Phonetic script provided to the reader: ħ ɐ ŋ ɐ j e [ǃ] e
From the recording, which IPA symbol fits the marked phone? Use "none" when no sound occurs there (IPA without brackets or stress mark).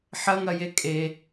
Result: kʼ